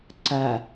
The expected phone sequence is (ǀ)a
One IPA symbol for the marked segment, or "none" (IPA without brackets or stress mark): ǀ